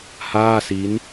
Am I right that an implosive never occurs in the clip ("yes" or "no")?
yes